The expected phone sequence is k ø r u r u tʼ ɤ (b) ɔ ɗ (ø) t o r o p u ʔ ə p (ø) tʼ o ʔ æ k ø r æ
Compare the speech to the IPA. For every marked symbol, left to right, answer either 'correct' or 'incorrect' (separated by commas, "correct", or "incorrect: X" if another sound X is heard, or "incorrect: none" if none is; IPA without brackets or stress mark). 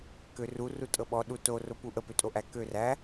incorrect: ɓ, incorrect: u, correct